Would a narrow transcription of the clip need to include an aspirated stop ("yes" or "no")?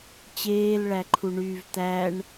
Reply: yes